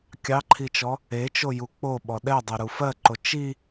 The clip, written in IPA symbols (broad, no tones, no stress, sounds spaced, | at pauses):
kʲ ɑ ǃʰ i t͡ʃ ɔ | e t͡ʃ o j u k͡p o ɓ ɔ ɗ ɛ dˤ e ɾ u f ɜ ǃ o t͡ʃ i